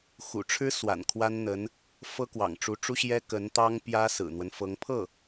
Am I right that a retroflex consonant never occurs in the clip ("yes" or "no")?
no